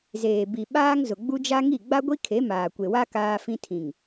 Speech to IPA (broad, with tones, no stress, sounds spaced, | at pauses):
z eː˨ b i˨ ɓ aː˦ ŋ z ʊ˨ ɡ͡b u˦ d͡ʒ a˦ ŋ i˦˨ ɡ͡b a˦ ɡʷ i˦ kʰ e˨˦ m aː˨ kʷ e˨ w a˦ k aː˦ f ĩ˦ tʰ ĩ˨ ŋ